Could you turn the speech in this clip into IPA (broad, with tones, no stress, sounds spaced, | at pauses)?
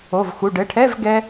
o˩˧˩ v x u˩˧˩ ɖ ɘ˩˧˩ ʈʰ ɛ˧˥˧ v ɡ ɛ˥